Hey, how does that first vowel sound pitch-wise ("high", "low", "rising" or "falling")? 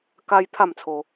high